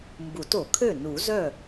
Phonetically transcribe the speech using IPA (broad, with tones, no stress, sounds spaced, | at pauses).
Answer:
m b u˨˩˦ t o˨˩˦ kʰ ø˥˩ n u˨˩˦ z œ˥˩